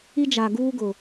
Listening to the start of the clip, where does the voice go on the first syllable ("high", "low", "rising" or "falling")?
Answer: high